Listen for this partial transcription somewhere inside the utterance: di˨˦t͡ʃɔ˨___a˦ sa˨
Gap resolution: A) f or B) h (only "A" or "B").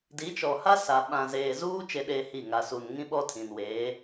B